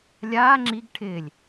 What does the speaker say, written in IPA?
lʲaː ŋ͡ǁiɡ ʈʰɪːlʲ

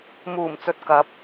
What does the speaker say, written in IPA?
muː˨˩mt͡sɵ˨t̚kɐ˨˥p̚

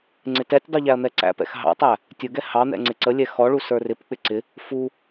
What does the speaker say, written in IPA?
ŋ͡ǀɪtɛtʲdˤu ʎæɐ̯n̪ɛǀæ̰pɛ̰x ɦɑ̰tˤæ | tʲʊɡɛ hɑn̪ɛ̰ ŋ͡ǀɪǀəlʲɛ xɔɭu sə˞rɪpk͡pɪ ǀɪ | fu

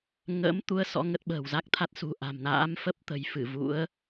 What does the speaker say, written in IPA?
ŋə̰ː˧˥mt̪u˨˦ə̯ sɔ̰˧˥ŋə˦˥t̚ɓə̤ː˨˩w za˦˥k̚t̪ʰa˦˥t̚sṳ˨˩ ʔa̤˨˩mna̰ː˧˥m fə˦˥p̚t̪ə̤˨˩j fɨ˧˩vṵ˧˥ə̯

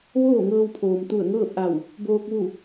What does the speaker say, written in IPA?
ʋoː˥˨ŋɤː˧wpʰoː˩m t̪u˧˩ə̯ŋɤː˥˨p̚ʔa˧˩w | boː˧k̚ ʋu˧˩

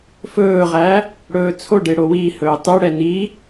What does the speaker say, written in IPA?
fɵːʁæ | ɽɵːt͡sʰoɖe ɽowihɵː tˤuɽɛ ni

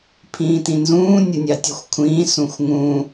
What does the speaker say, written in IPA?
pʰĩːtĩnzũː nʲənʲɑtʲəxʷkʷʰĩː sũxʷŋũ

